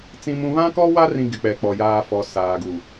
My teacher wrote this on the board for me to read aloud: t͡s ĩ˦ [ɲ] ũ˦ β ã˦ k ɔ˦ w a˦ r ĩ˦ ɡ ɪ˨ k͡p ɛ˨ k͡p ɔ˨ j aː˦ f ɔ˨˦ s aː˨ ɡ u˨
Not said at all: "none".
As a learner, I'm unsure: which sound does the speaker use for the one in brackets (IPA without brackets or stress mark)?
m